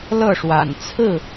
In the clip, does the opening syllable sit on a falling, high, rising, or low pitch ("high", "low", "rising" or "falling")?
falling